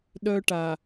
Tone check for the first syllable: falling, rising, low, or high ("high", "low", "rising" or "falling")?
high